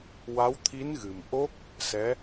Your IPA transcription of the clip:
w a˧˥ w t̪ʰ i˧˥ n ɣ ɨ˨˩ m ʔ o˦˥ k̚ | s ɛ˧˥

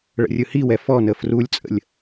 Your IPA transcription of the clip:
ɭ ə̰ rʲ ɯ h i w ɛ f ɔ n ə f r u lʲ t͡sʼ ə̰ lʲ

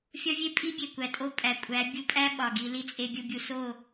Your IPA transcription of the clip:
fʲ ɒ˦ vʲ e˦ pʼ i˦ bʲ e˨ kʷ æ˨ tʼ o˦˨ pʼ æ˨ kʷʼ æ˨˦ bʲ u˧ pʼ æ˦ ɓ ɒ˨ ɡ i˧ l i˧ t͡sʼ e˧ bʲ u˧ bʲ u˧ s o˦˨

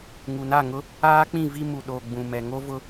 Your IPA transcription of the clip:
ŋ u˨ n a˦˨ ŋ ʊ˦ | aː˦ k͡p ĩ˦˨ v i˦ m u˨ ɗ oː˨ ɡ͡b ũ˨ m ɛ˨ ŋ o˦ v ʊ˦

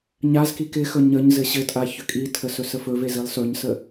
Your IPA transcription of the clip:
ɲ a z k i k ɪ x ɵ ɲ ə ɲ z ɘ ɕ ɘ tʼ a ç ʏ kʼ i tʰ ə s ɵ s ə f ɵ v e z i lˠ s ɵ ɲ s ə

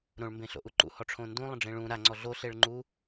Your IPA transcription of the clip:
ɾ õ ɭ m b ẽ ɬ o̰ ʔ u ǃ ṵ h ɔ ʈ͡ʂʰ õ n d ũ lˠ ə̃ ɖ͡ʐ ẽ ɭ ũ ɾ a ŋ͡ǀ ɔ ɮ o ɬ e ɭ ŋ͡ǃ u

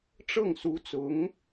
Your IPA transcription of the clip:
ʈ͡ʂ ɤ˥˩ ŋ s u˧˥ t͡s ʊ˧˥ ŋ

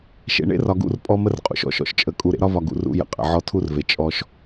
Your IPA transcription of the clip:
ʃ ḛ˨ ɳ ḛ˦ r ɒ˨ ɡ ṵ˦˨ r pʼ ɔ˦ m ə˦ r qʼ ṵ˨ ʃ ɔ̰˨˦ ʃ ɔ̰˨ ʃ t͡ʃʼ ə˨ kʼ u˨ ɾ ḛ˦ ɾ ɒ˦ v ɒ˨ ɡ ṵ˨ r ṵ˦ j ə̰˨ qʼ ə̰˨ ʕ ɔ˦ tʰ u˦ r v e˨ t͡ʃʼ ɔ˦ ʃ

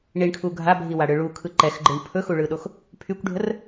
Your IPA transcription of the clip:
ɳ i ɳ kʰ u ɡʱ a bʱ i w a ɽ ɯ ɭ u kʰ ɯ ǃ ɛ x ɡ͡ǃ ɯ ɳ pʰ ɵ x u ɭ ɯ ɗ o x | pʰ y kʷ ɖʱ ə r

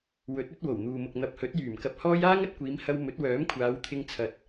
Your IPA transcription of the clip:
w ɵ˨˥ t̚ ɵ˨˥ t̚ w o˨˩ w n̪ uː˨ m ʊ˨ k̚ n̪ ɐ˨ p̚ h ɵ˨˥ t̚ j yː˨˩ m k ɐ˧ p̚ h ɔː˥ j aː˥ ŋ ɐ˨˥ t̚ kʷ iː˨˧ m h ɐ˧ w m ɵ˨˥ t̚ w œː˨˥ m kʷʰ aː˨˧ w t̪ʰ ɪ˧ ŋ t͡sʰ ɐ˨ t̚

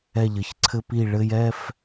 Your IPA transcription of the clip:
ɛ˧˩ ʎ ɘ˩˧ ç ǀʰ ɘ˧ p i˧˩ ɭ ɘ˧ j ɛ˥˧ f

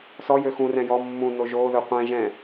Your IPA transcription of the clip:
s ɔ j ø x ũ r ɛ̃ j ɔ mː ũ n o ʒ oː ð ɵ qʷ ɛ̃ ʒ ɛ̃

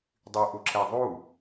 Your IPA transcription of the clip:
dˤ y ʔ u ǁ ɛ ðˤ u

